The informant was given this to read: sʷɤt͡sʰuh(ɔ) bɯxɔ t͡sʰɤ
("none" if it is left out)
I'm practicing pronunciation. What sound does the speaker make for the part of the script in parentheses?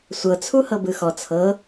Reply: ɤ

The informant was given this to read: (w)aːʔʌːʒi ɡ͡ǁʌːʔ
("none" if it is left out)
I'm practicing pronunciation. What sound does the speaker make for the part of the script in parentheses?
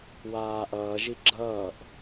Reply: w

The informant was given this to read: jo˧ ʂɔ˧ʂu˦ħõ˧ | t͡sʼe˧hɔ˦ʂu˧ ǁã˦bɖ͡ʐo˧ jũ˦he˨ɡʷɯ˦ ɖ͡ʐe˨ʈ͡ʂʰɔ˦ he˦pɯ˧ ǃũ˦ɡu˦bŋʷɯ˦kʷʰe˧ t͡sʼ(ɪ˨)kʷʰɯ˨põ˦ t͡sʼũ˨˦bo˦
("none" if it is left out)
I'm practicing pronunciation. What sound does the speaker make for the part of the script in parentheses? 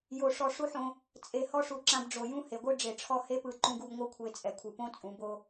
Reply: ɛ˨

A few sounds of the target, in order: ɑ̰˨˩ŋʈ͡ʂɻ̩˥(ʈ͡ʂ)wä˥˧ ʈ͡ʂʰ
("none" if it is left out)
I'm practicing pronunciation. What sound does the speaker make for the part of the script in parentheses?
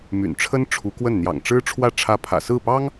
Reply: ʈ͡ʂʰ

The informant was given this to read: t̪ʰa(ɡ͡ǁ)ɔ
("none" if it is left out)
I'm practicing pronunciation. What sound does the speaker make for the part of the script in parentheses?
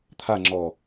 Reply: ŋ͡ǁ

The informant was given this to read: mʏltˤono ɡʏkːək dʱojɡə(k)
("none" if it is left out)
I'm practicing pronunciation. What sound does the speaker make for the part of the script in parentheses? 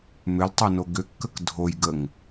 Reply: ŋ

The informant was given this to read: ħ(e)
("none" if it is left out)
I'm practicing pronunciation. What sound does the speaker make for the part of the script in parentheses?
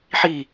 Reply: i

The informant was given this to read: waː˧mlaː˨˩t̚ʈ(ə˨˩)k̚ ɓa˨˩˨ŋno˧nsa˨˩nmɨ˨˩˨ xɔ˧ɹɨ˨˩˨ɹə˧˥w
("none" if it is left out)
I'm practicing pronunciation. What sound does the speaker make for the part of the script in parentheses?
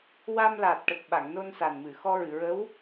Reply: ə˨˩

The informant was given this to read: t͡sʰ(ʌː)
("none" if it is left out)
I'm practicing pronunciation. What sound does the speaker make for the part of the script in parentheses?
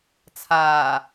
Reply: aː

